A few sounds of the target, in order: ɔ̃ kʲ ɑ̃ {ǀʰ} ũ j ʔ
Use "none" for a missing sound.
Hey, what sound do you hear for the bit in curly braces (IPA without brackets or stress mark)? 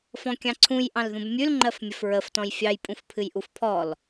ǀʰ